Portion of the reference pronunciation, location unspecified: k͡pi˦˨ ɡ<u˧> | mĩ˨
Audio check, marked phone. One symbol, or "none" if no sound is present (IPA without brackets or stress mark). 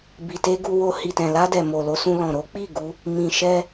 u˧